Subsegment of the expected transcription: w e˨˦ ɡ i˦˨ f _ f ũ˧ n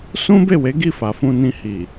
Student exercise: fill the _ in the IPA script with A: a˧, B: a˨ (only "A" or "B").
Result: B